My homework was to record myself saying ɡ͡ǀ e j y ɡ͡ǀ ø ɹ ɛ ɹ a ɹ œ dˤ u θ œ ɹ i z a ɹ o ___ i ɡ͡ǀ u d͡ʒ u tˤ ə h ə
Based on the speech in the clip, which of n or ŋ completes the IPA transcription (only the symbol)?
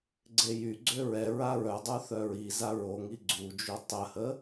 ŋ